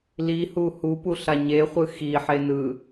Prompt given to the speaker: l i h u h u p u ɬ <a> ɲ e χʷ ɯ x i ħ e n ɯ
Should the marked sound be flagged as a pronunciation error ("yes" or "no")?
no